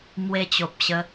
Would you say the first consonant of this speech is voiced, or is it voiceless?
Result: voiced